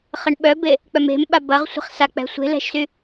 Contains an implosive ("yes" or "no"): yes